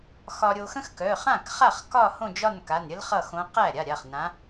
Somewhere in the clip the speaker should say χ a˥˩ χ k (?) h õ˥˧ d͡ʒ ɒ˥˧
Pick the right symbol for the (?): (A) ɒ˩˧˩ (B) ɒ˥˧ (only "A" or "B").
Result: B